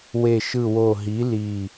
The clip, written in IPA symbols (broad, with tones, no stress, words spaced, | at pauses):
we˧˩ ʃɯ˧˩wo˧˩ɦi˩˥ li˧˩